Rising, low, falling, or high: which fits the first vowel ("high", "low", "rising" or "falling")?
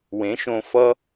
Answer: rising